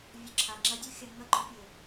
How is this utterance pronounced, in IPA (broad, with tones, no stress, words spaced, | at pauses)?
vʲɔ˧ǁʰa˨ŋ͡ǁɐ˦ dʲu˦xʲa˧ ŋɐ˦˨ɡ͡ǃʊ˦pʲe˨